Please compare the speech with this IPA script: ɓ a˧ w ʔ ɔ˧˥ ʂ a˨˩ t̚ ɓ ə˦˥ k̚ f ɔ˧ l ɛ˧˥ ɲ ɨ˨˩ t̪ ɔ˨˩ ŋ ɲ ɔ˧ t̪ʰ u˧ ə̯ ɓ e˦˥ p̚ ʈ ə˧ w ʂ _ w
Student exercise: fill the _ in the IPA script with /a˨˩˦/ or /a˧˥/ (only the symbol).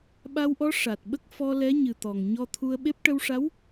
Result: a˧˥